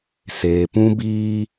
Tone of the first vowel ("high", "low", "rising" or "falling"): low